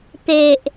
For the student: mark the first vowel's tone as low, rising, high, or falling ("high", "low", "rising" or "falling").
low